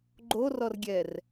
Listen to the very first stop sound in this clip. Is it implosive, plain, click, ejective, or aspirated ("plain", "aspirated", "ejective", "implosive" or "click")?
click